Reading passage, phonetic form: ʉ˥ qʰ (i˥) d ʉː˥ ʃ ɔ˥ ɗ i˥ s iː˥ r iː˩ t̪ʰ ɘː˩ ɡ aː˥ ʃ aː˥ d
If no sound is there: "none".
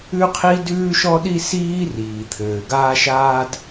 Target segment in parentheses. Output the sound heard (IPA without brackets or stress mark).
i˥